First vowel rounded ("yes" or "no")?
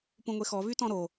yes